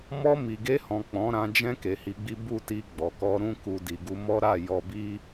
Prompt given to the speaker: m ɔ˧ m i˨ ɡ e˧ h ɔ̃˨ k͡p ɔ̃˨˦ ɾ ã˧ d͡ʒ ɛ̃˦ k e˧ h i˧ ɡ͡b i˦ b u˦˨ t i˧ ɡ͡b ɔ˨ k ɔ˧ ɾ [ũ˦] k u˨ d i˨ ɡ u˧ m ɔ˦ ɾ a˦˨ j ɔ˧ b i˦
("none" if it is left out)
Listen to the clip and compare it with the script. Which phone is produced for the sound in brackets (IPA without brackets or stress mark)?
ũ˧